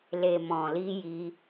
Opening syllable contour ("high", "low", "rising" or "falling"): low